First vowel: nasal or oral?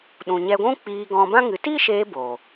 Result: nasal